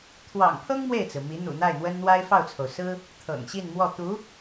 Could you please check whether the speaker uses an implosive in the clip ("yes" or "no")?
no